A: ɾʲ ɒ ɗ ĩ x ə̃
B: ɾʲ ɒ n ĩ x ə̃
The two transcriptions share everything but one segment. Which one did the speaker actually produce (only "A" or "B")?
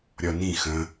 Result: B